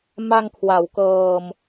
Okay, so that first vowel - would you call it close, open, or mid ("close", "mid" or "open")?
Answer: open